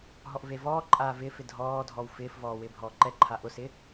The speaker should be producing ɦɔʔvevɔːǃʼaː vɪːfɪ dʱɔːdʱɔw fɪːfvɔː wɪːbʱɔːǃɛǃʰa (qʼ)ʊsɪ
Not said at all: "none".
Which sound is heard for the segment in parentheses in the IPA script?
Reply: ʔ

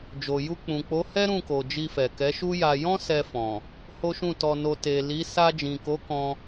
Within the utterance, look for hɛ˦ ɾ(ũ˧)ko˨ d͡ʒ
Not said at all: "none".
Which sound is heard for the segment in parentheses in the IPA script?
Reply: ũ˦˨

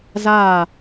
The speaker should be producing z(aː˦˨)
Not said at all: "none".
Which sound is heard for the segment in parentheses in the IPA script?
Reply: aː˦˨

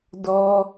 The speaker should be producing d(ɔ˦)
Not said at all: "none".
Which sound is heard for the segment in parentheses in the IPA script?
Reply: ɔ˦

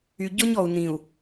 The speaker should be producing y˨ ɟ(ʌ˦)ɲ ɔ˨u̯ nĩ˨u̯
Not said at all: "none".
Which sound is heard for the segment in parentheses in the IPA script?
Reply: ɔ˦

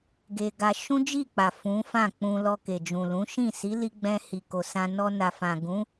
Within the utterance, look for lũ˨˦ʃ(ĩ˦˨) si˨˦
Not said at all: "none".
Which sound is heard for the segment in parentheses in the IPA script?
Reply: ĩ˦˨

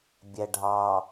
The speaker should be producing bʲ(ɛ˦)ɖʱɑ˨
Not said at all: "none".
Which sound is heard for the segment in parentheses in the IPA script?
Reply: ɛ˨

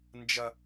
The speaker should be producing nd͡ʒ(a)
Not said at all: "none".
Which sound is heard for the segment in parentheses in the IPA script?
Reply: ɐ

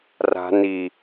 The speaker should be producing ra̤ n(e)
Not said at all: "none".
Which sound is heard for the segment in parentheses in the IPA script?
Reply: i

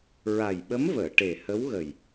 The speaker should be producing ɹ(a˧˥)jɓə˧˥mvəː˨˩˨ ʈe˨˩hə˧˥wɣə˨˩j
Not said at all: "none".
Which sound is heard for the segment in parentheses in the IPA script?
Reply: a˨˩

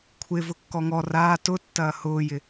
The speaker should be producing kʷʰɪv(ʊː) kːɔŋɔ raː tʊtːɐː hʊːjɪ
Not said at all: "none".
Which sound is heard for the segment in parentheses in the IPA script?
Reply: ʊ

